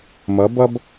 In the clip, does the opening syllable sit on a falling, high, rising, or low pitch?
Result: rising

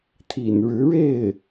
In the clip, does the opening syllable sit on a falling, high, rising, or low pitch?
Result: low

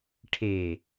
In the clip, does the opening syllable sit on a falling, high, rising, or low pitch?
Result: low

